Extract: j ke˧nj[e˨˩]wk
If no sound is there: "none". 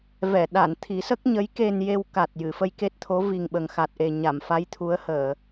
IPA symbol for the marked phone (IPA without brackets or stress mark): e˧